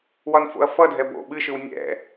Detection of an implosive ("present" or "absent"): present